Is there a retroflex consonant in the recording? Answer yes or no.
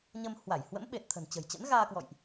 no